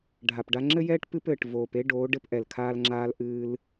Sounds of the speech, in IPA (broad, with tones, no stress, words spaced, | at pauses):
ɖʱa˨pɖa˧ŋ͡ǁɘ˦jɛː˦ʈ pɨ˧pɘː˨ʈ voː˨p e˦ɖoː˨˦ ɖɘ˧pʔɛ˨lkʰaː˧lŋ͡ǁaː˧l ʔɨː˧l